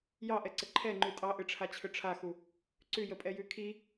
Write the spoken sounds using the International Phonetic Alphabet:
jɑʔɛǀə ǃʰɛŋ͡ǃʉ tʼɑʔɨʈ͡ʂʰat͡ɕʰʏ ʈ͡ʂʰaxu | ǀʉjəpʼɛjʉ kʰi

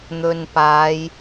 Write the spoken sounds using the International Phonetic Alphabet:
n̪ɵ˨npaː˨˧j

